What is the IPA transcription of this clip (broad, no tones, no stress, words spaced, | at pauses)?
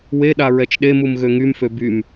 weɗa ɹɛt͡ʃɗemum ɣøŋymfø bym